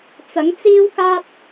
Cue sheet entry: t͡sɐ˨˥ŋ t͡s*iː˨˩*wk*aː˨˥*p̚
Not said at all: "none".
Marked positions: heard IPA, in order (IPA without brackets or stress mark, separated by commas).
iː˥, aː˥